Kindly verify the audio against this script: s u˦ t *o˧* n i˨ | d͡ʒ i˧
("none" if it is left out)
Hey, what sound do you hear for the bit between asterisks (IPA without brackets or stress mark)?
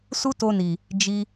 o˧